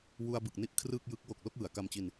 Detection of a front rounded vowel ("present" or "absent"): absent